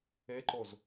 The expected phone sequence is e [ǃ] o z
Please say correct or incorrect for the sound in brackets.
correct